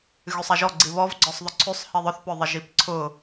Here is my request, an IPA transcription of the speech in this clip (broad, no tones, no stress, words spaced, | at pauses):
ɣysˤaʒɔɡ͡ǀi βɔvɡ͡ǀɔsˤðˤʊ ǀʰysˤhi ðˤʊθpʊðˤɪ ʒipǀʰʊ